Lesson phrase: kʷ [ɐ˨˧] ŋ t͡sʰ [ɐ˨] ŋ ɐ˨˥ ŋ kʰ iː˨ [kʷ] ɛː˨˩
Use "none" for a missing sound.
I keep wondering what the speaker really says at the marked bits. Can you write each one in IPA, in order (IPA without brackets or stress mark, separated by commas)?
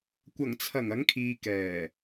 ɐ˨˩, ɐ˨˩, k